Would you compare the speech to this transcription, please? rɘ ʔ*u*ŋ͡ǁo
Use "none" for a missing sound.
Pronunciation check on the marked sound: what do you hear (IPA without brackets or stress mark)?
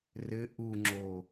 u